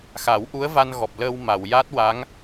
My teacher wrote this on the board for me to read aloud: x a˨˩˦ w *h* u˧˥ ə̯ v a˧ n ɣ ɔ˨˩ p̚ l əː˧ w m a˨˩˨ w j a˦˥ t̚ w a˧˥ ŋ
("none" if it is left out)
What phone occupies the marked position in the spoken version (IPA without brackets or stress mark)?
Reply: ʔ